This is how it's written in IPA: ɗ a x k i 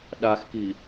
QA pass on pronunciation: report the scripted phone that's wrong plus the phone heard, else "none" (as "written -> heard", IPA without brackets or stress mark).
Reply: none